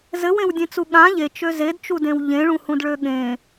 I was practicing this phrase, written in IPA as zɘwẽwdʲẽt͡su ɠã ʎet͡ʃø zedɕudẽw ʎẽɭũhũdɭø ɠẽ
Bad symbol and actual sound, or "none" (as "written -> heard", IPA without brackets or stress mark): ɕ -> t͡ʃ